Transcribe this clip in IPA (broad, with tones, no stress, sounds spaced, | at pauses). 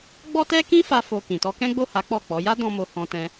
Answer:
ɡ͡b ɔ˦ t ɛ˦ k ĩ˦ f a˦ f o˧ k ĩ˨ t ɔ˧ k ɛ̃˦ ɡ͡b o˦˨ h a˨˦ k͡p ɔ˦˨ k͡p ɔ˨˦ j a˦ d ɔ̃˧ m o˨ h ɔ̃˧ t ɛ̃˧